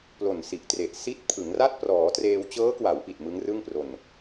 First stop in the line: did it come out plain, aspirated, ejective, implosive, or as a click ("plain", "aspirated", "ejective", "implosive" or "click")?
plain